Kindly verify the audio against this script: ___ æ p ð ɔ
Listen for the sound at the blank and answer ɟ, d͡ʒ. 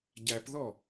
ɟ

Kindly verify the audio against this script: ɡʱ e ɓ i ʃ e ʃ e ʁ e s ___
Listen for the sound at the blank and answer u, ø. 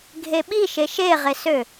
ø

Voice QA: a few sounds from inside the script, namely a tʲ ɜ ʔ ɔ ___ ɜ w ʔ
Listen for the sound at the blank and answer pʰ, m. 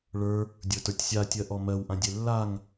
m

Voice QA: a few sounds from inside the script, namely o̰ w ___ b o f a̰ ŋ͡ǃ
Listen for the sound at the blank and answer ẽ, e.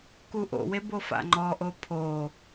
e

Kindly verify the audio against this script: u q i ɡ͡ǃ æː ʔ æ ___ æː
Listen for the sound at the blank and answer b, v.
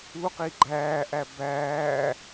b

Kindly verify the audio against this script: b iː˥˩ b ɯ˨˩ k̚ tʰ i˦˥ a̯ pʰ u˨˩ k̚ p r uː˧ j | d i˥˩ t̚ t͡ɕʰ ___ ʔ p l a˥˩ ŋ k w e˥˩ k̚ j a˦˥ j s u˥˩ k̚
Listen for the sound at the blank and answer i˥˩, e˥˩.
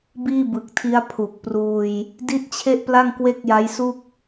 e˥˩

